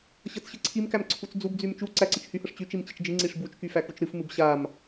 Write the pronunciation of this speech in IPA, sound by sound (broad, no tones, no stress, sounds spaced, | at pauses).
ɕ ɤ t͡s ɕ ɨ ǀʰ i m k æ m ǀʰ u t͡s d͡z u b d͡z y m t͡ʃ u ǀ æ ǀ ɨ t͡ʃ h y h ɤ ʂ t͡ɕ y t͡ʃ i m t͡ɕ i t͡ʃ d͡ʒ ɨ ŋ͡ǀ i ʂ b u t͡ʃ k y f æ k u t͡ʃ ɾ ɨ f m ɨ b ɕ a m